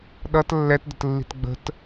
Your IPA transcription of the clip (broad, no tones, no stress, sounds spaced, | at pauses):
ɗ ʌ t lː ɛ t d ə̤ t lː i̤ t ɡ͡b ə̤ t